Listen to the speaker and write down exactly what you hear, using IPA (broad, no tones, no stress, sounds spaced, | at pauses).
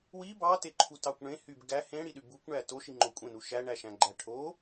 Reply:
w i b ɑ t e ǃʰ u t ɑ kʷ ɳ ẽ h y b ɡ æ h ẽ ɽ i ɗ y b u kʷ ɳ æ t o ʃ i ŋ͡ǃ o kʷʼ ẽ n u ʃ æ ɳ æ ʃ æ̃ ɡ͡ǃ æ ʈʰ o